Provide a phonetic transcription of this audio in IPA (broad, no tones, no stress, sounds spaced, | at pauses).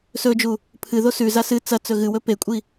s ɵ d͡ʒ u | pʰ ɨ ð o s ʉ z a s ɨ t͡s ɐ t͡s ɵ ɣ ɨ w ɵ p e kʷʼ i